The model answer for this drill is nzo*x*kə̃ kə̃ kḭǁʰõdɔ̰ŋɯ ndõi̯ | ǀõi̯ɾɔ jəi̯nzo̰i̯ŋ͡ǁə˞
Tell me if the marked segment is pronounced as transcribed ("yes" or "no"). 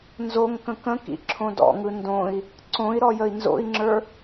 no